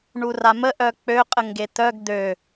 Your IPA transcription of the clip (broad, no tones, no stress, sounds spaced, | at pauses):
ɳ u r a m ə ʔ œ k͡p ø qʼ ə ŋ ɡ e t̪ œ ɡ d̪ ø